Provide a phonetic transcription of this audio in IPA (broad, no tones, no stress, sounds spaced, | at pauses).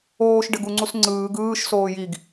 oː ʃ ɖ ɘ ɡ u ŋ͡ǀ u s ŋ͡ǀ ɯː ɡ ɯː ʃ s oː j i ɡ